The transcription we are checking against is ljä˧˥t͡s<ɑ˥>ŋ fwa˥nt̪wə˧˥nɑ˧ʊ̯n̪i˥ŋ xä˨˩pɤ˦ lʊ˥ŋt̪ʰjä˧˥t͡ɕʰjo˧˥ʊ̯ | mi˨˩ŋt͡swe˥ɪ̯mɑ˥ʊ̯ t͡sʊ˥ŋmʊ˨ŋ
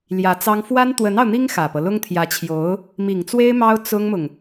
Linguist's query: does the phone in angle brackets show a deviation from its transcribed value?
no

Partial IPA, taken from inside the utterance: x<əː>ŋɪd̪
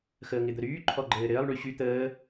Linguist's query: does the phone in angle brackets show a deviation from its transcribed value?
no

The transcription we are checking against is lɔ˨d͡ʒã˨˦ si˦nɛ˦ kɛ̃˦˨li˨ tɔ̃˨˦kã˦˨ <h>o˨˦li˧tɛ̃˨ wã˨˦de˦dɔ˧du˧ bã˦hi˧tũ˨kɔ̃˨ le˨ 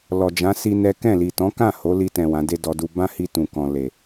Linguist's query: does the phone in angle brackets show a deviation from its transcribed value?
no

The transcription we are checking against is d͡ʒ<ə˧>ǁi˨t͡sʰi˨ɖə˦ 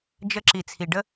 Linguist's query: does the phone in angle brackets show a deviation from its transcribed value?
no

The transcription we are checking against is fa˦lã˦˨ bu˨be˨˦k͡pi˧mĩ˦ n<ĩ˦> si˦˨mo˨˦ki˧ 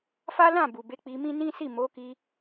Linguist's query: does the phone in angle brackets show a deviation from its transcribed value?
no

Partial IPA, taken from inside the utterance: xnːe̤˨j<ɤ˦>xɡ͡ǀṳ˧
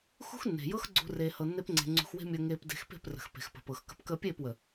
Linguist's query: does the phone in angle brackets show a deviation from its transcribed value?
no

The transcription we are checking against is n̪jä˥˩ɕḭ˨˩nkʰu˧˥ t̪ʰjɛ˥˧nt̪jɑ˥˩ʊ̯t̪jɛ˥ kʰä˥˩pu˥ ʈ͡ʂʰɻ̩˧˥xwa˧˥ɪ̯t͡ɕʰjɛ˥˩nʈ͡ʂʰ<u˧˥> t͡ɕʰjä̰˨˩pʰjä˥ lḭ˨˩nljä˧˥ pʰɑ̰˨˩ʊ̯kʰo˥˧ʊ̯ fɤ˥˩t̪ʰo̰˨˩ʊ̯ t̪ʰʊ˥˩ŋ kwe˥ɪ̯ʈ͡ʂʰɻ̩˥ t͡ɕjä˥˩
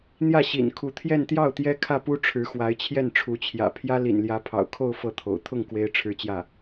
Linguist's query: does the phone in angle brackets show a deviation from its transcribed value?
no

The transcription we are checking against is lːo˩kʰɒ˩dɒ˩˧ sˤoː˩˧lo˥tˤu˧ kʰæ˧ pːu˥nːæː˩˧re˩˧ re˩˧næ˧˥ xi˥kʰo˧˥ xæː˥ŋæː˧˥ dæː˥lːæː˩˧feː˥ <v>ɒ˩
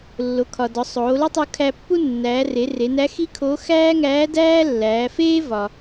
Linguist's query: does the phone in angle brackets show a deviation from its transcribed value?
no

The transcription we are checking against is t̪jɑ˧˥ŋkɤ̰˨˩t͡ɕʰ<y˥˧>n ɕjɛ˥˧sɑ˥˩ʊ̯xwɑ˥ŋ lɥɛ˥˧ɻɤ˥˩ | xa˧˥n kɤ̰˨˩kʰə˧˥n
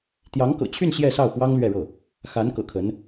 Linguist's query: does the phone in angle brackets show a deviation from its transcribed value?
no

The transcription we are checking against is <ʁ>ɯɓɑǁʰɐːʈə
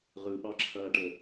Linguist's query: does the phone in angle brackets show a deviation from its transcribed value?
no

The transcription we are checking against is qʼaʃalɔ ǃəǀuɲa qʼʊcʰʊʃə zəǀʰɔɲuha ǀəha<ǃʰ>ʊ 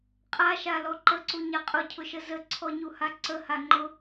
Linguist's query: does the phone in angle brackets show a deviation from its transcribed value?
yes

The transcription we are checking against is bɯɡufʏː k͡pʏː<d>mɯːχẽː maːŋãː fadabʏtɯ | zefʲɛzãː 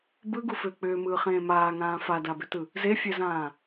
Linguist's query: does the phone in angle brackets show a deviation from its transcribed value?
yes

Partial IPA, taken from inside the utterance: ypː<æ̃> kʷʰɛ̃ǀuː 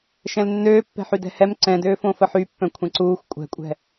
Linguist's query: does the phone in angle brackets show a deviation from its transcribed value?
yes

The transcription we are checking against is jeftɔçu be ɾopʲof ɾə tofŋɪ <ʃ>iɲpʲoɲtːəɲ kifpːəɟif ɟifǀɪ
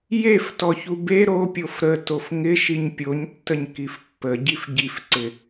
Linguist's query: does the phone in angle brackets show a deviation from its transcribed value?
no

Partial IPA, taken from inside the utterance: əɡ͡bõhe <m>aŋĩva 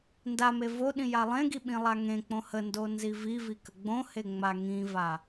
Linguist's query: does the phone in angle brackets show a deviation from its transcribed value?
yes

